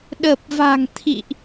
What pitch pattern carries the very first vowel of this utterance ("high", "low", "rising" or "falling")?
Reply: low